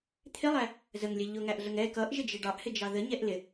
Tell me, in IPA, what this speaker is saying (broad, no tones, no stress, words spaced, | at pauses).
t̪ʰɪlˠæ | zəŋlʲɛ ʎʊŋæʔɮəŋ ɛ kʌʔʒɪd͡ʒɪ ɖɑʔhɪd͡ʒɑ ðəɲɛʔ lɪ